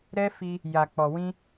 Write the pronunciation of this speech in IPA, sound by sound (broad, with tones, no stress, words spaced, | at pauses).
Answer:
ɾɛ˦fi˧ | ja˨k͡pɔ˨wĩ˧